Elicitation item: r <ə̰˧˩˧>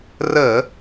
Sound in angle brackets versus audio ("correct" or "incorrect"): incorrect